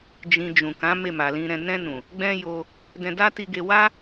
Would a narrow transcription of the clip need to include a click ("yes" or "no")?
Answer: no